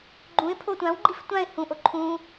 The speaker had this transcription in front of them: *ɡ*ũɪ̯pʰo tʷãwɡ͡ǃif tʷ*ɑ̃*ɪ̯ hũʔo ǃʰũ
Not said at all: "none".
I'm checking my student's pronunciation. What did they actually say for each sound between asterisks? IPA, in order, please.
ɡ͡ǃ, ã

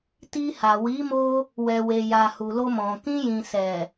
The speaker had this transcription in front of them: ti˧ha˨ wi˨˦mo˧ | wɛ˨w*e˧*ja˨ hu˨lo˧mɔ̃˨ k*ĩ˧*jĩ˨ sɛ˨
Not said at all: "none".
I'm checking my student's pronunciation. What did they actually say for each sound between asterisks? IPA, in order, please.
e˨, ĩ˧

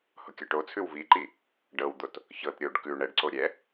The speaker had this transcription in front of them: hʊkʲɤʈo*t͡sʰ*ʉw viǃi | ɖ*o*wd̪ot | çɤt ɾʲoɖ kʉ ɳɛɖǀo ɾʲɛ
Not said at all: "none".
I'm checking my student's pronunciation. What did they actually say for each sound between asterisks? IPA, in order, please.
t͡sʰ, ɤ

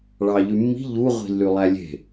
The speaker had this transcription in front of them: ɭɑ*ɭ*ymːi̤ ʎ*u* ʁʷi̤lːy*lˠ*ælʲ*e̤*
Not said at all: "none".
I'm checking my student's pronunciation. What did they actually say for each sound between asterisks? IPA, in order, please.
ʎ, u, lˠ, e̤

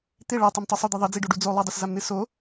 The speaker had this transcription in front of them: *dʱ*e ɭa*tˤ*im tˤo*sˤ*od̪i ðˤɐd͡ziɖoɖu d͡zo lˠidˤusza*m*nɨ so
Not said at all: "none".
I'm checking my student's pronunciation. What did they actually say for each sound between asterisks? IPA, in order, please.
t̪, tˤ, sˤ, m

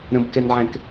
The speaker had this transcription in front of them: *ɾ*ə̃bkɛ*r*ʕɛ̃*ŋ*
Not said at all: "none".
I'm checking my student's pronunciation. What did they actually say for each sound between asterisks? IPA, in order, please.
ɾ, n, k

